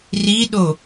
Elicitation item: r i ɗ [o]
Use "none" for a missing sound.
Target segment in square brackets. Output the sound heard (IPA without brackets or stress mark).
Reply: o